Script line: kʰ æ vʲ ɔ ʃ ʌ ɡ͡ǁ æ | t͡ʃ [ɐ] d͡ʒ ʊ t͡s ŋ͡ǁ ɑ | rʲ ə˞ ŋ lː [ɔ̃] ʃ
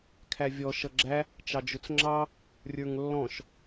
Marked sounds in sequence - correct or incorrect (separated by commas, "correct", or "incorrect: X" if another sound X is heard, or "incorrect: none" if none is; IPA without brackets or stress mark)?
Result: incorrect: ɑ, correct